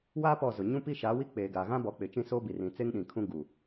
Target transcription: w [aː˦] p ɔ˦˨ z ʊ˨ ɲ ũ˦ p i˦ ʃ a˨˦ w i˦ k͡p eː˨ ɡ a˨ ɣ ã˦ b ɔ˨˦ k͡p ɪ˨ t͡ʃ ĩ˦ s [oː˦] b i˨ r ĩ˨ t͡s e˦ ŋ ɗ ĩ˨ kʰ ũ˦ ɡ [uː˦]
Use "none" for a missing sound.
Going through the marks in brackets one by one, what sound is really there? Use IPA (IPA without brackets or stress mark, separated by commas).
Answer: aː˦, oː˦, uː˨